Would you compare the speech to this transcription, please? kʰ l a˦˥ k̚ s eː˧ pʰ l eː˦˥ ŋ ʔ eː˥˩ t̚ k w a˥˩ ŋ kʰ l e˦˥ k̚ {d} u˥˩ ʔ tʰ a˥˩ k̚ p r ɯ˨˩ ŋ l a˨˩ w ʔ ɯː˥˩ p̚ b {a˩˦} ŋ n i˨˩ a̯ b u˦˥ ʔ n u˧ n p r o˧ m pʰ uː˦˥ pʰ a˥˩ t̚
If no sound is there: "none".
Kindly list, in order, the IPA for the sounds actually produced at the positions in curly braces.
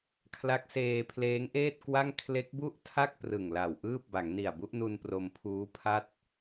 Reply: b, a˩˦

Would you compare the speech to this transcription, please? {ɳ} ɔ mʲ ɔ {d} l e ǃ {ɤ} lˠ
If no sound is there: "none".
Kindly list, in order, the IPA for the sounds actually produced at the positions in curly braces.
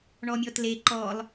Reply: ɳ, t, ɔ

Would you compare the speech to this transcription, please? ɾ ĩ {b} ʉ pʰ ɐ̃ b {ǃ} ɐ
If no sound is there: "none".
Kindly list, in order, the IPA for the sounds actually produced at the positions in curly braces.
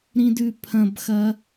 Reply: d, x

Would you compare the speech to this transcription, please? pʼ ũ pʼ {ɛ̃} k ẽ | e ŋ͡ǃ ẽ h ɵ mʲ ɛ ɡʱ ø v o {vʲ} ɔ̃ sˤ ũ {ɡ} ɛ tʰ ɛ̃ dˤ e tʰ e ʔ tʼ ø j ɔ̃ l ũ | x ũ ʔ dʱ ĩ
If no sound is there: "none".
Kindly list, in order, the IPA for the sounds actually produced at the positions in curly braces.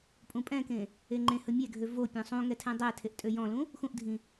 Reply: ɛ̃, pʲ, ŋ

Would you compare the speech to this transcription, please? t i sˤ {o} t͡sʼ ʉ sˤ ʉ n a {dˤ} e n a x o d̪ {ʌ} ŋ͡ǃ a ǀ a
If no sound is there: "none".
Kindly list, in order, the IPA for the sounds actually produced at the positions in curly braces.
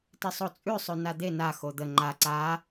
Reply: o, d̪, ə

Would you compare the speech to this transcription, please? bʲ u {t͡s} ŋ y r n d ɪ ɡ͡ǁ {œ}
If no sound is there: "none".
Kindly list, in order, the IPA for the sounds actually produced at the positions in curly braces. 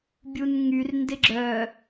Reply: n, œ

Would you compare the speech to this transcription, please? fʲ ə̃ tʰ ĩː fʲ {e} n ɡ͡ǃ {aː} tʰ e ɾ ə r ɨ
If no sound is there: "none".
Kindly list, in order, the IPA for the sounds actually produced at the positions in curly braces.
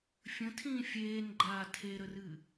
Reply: eː, aː

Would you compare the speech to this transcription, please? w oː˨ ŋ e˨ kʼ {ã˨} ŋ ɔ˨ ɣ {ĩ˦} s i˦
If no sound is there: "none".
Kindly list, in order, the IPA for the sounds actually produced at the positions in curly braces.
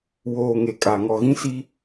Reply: a˨, ĩ˦

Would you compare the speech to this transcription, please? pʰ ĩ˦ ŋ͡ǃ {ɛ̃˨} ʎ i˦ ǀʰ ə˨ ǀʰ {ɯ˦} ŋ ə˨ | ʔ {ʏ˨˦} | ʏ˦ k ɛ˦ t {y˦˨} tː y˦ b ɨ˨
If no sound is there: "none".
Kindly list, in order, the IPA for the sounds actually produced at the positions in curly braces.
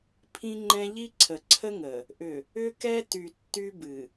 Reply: ɛ̃˦, ə˦, ʏ˨, y˨

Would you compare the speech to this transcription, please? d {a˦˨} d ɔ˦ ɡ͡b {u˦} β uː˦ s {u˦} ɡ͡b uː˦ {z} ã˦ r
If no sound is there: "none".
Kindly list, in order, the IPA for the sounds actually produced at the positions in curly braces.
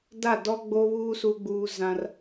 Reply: a˦˨, o˦, u˦, z

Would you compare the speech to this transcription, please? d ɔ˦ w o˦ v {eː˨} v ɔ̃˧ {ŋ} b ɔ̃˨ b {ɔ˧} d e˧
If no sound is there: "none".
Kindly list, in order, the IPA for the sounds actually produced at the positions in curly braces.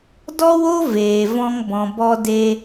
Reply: eː˨, ŋ, ɔ˧

